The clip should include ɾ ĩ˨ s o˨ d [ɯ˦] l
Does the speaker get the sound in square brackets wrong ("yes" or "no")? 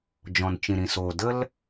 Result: yes